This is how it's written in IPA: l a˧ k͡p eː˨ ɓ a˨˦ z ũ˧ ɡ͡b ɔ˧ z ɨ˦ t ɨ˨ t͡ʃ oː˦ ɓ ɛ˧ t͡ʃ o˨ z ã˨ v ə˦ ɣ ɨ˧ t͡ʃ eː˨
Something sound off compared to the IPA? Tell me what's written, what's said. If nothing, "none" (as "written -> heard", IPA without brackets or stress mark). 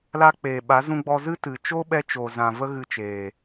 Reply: oː˦ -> o˦